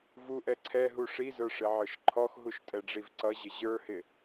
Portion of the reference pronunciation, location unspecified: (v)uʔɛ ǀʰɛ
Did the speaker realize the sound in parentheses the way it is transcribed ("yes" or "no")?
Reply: yes